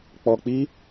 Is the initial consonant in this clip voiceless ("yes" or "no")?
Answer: yes